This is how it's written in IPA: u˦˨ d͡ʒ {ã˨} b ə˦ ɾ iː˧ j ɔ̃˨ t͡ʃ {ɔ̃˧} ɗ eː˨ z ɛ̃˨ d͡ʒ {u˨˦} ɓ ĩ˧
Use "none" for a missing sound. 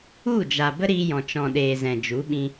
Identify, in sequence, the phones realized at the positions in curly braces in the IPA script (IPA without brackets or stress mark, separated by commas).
a˨, ɔ̃˨, u˨˦